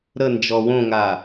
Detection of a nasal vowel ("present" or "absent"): present